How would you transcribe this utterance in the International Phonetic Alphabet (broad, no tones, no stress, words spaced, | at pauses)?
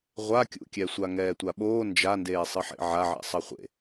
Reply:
ʁʷakʲṵkʲɛ sʷaŋɛːtʷaɓoː nd͡ʒandeːsˤɯħḛ ʕaʕɛ̰ sˤʌχʷḛ